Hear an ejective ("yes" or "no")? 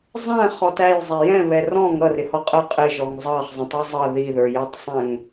yes